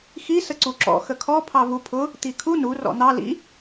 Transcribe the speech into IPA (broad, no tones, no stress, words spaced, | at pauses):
xi səǀuǁɔ̰ xəkʰɔ pʰɑvupʰʊ | t̪ikʰu nu rɔ̰n̪ɑ lḭ